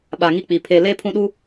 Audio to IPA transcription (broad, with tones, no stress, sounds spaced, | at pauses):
ɓ a˨ ŋ i˦ k͡p i˨ pʰ e˦ l e˦ pʰ ũ˦ ɗ u˦